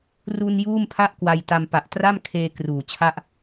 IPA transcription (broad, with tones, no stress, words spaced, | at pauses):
ru˧n juː˥˩mpʰa˥˩ʔ kwa˧jta˧m pa˨˩ʔtra˥˩mkʰeː˧ kruː˨˩t͡ɕʰa˥˩ʔ